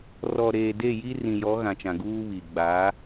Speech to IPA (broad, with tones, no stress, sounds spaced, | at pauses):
r ɔ˨ ɾ eː˨ d e˦˨ j i˦ r ĩ˨ j ɔ˨˦ ɣ ã˨ t͡ʃ ã˨ ɡ uː˦ β i˨ ɡ͡b a˨˦